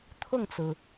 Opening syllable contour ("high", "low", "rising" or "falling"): falling